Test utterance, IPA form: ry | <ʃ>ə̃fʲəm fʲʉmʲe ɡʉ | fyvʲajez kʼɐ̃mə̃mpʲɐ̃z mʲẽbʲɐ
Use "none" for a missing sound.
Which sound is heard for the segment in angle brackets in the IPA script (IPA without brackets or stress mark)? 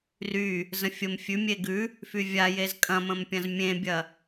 z